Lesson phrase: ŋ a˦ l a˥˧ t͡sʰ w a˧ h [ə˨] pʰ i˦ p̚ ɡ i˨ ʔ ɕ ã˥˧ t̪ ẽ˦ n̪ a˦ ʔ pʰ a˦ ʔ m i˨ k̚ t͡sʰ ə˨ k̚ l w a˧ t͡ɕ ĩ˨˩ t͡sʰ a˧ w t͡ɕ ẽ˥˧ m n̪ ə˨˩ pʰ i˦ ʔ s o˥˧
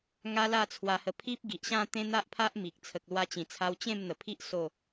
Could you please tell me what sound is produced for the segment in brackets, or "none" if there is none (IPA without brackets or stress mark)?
ə˧